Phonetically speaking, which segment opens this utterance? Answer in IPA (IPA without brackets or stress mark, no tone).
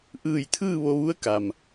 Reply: ʔ